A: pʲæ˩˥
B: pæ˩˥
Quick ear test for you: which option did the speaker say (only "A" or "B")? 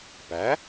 B